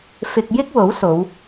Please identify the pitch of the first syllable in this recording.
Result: low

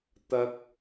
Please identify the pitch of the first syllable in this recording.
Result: rising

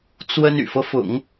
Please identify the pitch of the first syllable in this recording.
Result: high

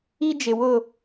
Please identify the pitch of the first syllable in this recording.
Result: high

